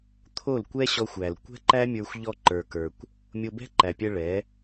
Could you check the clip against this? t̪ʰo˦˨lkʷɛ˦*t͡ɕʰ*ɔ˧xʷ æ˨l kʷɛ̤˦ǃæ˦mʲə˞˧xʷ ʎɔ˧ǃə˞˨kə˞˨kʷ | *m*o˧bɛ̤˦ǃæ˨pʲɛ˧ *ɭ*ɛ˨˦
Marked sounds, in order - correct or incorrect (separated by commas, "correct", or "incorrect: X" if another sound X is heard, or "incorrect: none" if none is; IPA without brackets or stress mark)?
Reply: incorrect: ɕ, incorrect: mʲ, correct